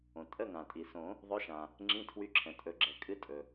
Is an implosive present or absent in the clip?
absent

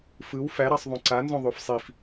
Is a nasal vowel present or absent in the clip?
present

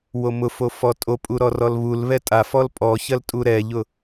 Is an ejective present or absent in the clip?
present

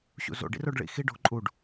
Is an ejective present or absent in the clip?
present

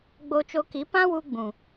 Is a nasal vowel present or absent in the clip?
present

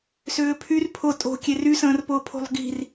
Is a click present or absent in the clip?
absent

